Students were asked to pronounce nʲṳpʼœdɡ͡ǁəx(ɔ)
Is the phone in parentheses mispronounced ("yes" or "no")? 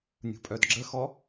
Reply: no